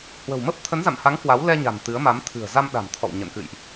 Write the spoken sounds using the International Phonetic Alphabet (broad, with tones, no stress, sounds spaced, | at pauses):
h w ə̤˨˩ w m ə˦˥ p̚ t̪ʰ ə˨˦ n z a̰˧˨ m h a˨˦ ŋ k w a˨˦ w l ɛ˧ ɲ a̤˨˩ n t̪ ɨ˨˦ ə̯ m a˨˦ m t̪ʰ ɨ̤˨˩ ə̯ z a˧ m ɗ a̤˨˩ m t̪ʰ ɔ̰˧˨ w ɲ ə̰˧˨ n k ɨ̰˧˨ j ʔ